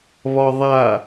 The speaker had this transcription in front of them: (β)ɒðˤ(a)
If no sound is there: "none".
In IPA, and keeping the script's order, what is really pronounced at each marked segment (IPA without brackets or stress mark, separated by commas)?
β, a